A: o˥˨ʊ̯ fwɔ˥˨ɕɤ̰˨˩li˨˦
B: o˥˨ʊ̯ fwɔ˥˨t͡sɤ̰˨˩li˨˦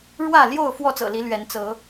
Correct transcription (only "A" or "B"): B